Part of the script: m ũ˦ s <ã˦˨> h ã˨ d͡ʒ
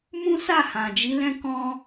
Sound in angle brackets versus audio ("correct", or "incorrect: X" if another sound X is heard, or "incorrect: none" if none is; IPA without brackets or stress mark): incorrect: a˦˨